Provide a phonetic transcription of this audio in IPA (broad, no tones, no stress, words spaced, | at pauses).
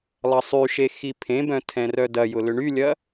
lˠɐsˤyʃe xipʰẽbœ̃ tʰɛ̃rœdɐjʊ lʏɳylʲɐ